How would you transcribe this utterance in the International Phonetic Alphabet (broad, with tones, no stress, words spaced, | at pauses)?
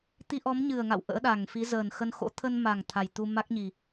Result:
t̪i˧ʔɔ˨˦mɲɨ˨˩ə̯ŋa̰˧˨w ʔə̰ː˧˥ɗa˨˩ŋfi˨˦ zəː˨˩nxə˧nxo̰˧˥ t̪ʰə˧nma˨˩ŋ t̪ʰa˨˩jt̪u˧ ma˦˥k̚ɲi˨˩